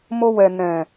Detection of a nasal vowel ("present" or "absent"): present